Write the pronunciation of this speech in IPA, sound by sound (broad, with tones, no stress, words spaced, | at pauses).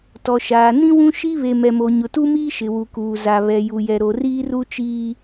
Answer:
tɔ˨ʃaː˨ nĩ˦wũ˦ ʃi˦ βe˨mɛ˨mo˨ ɲʊ˨tu˦miː˦ ʃɪ˨ wu˨kuː˨ za˨ βɛ˨ju˨jɛ˨ ɾo˨ riː˦ru˦ t͡ʃiː˦